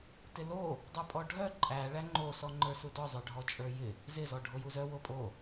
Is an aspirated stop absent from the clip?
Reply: yes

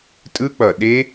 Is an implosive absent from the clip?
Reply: no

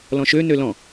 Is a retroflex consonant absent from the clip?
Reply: yes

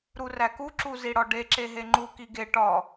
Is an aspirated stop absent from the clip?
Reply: yes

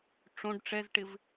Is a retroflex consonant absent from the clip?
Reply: no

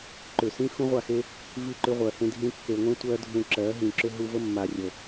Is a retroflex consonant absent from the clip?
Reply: yes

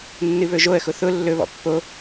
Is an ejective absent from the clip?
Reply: yes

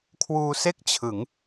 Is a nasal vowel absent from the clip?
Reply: yes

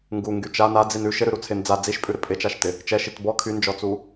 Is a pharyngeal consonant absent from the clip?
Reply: yes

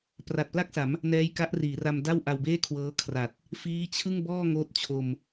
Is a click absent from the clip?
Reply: yes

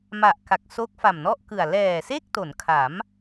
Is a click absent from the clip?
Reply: yes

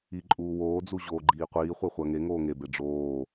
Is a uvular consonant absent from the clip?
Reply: no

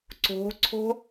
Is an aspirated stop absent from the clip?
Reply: no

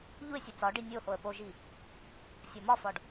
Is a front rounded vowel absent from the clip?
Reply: yes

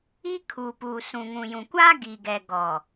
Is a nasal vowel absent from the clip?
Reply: no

